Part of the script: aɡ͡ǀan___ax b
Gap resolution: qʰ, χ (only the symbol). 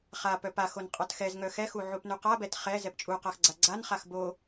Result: χ